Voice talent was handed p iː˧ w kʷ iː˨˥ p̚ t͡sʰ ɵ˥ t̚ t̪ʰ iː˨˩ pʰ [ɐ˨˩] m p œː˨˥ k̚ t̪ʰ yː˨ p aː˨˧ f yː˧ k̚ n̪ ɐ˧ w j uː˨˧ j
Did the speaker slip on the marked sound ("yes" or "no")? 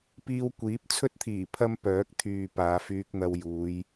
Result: yes